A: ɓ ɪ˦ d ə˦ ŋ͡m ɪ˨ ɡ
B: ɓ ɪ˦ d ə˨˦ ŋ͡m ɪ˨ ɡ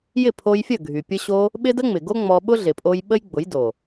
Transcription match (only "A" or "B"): A